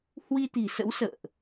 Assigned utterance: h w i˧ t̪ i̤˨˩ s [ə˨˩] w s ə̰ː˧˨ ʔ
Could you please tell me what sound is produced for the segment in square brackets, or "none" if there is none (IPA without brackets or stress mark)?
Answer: ə̰˧˥